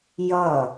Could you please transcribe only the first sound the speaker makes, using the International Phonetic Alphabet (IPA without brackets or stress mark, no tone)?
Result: j